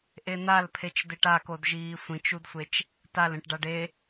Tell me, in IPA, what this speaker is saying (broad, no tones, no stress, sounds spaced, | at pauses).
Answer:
ʔ e n̪ a l pʰ e t͡ʃ d e ʈ a k o d ʒ iː sʷ ĩ t͡ʃ u d sʷ e t͡ʃ | t a l ẽ ʈ ɖ a ɖ e